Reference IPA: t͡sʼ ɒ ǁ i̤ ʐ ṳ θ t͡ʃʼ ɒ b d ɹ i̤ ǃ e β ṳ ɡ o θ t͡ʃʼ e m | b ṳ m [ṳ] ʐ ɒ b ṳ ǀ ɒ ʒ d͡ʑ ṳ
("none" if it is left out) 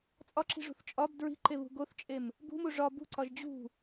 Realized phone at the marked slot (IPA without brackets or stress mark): u